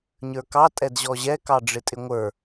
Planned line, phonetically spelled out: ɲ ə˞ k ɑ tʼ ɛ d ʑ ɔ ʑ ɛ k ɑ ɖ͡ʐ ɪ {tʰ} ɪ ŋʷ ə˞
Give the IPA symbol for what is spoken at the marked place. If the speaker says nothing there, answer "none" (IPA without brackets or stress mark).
tʼ